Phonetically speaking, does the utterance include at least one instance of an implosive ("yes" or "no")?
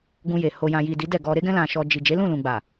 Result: no